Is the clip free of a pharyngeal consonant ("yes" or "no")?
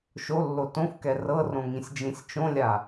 yes